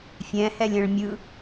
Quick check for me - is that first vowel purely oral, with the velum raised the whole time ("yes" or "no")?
no